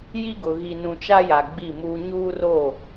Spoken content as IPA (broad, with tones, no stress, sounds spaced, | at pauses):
j i˦ ɡ ʊ˨ ɣ i˨ n ũ˨ t͡ʃ a˦ j a˨ ɡ͡b i˦˨ m uː˦ ɲ uː˦ r o˦˨